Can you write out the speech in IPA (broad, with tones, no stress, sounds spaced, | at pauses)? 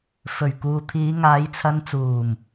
f ɵ˨˩ ɥ k uː˨ t̪ʰ iː˨˧ ŋ aː˨˧ j t͡sʰ ɐ˧ n t͡s uː˨˩ m